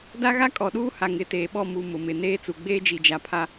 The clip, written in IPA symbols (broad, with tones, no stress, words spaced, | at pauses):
da˦ɣa˦ kʼɔ˨ɗuː˦ ha˨ŋɪ˨˦teː˨ɓɔ˦˨ mu˨ mʊ˨mɪ˨ neː˦t͡su˨ ɡ͡beː˦d͡ʒi˨d͡ʒa˨pʰa˦